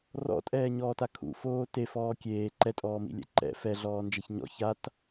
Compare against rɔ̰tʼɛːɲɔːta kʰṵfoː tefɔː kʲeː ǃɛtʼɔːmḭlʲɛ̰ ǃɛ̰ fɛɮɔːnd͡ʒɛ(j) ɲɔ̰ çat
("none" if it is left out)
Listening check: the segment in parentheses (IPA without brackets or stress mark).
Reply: ç